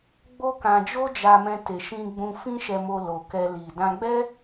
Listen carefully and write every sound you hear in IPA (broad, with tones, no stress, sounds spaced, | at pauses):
ɡ͡b o˦ k ã˧ d͡ʒ o˦ d͡ʒ a˧ m ɛ̃˧ t e˨ ʃ ĩ˧ ɡ͡b ũ˧ f ĩ˦ ʃ ɛ˧ m o˧ l o˨ k ɛ˧ l i˨ d ã˧ ɡ͡b ɛ˦